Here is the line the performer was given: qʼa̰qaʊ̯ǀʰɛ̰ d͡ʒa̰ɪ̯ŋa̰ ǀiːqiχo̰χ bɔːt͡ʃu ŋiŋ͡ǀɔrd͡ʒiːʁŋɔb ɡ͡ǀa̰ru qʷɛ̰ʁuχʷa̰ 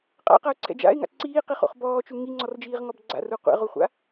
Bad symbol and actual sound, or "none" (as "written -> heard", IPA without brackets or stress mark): none